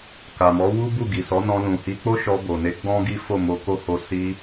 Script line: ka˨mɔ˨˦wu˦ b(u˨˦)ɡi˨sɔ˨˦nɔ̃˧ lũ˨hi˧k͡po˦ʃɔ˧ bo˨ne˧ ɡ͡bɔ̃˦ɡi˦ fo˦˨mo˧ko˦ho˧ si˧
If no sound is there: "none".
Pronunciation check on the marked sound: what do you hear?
u˦˨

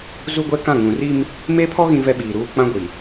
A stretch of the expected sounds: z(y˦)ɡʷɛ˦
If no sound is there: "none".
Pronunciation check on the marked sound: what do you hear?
u˦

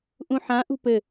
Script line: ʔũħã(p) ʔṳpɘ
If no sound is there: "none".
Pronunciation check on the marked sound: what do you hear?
none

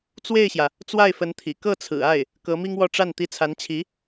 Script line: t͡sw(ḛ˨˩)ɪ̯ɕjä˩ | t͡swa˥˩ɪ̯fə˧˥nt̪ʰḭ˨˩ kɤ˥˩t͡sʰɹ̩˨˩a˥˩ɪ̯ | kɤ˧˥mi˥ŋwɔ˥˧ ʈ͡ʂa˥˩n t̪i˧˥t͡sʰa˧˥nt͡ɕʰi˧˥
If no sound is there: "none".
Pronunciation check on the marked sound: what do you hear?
e˥˩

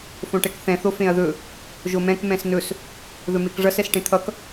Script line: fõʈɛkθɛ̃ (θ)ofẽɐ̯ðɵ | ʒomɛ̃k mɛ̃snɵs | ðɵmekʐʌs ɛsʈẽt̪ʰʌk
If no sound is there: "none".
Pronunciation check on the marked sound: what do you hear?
θ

